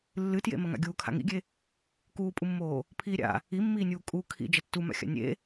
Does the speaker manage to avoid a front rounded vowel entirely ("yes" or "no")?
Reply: yes